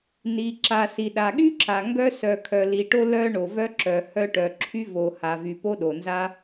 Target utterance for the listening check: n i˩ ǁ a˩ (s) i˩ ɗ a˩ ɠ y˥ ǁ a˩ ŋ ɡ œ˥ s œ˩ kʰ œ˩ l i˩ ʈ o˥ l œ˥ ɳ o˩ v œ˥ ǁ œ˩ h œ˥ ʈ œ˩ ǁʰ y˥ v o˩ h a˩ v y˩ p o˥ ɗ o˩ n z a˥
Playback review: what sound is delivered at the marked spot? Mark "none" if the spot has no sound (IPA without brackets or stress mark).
s